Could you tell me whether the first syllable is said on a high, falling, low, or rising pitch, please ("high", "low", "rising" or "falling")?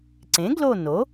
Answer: rising